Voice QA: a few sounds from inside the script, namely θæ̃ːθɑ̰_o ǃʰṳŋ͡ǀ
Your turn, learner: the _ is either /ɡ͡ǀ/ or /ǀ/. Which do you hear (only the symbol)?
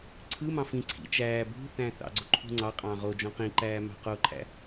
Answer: ɡ͡ǀ